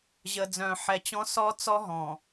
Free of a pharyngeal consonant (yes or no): no